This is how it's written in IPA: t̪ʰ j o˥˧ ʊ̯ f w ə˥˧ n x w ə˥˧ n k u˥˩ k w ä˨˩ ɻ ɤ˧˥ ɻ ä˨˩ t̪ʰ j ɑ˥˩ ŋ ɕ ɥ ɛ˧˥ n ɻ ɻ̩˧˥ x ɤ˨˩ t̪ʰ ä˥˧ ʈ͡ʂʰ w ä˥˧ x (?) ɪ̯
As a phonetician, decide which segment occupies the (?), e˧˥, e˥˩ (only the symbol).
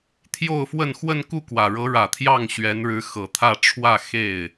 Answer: e˥˩